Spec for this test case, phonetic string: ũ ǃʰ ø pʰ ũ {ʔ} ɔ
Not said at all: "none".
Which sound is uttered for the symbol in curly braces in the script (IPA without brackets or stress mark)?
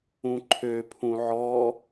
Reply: ʕ